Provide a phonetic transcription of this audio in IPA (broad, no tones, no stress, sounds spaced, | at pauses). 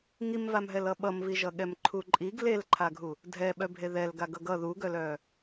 ŋ i m v a m ɦ ɛ l ʌ ɓ ʌ m v i ʒ ʌ ɠ ɛ m ǃʰ u ǃʼ i ɡ l e l ǃʰ a ɡʱ u | dʱ ɛ ɓ œ bʱ e ð ɛ l ɡ a ɡ ʌ ɡ ʌ ð u ɡ œ l œ